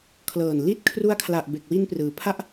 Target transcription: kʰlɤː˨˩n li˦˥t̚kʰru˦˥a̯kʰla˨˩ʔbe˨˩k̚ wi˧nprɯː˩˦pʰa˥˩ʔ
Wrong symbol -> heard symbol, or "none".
none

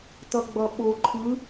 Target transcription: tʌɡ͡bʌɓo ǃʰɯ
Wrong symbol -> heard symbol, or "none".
none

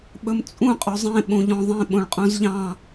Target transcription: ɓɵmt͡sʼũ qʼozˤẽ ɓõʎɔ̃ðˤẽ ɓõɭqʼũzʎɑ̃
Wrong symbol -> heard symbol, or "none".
none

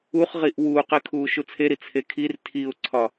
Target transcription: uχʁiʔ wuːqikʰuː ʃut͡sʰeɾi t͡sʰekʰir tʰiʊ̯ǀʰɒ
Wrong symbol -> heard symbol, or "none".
none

